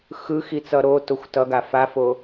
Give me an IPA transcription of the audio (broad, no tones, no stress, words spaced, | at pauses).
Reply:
xɯxit͡sʌ ɾotoxʷ tʌɡa fafo